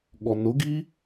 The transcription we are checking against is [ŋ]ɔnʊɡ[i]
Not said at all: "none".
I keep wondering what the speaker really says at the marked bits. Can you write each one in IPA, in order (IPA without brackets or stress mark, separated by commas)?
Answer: ɠ, i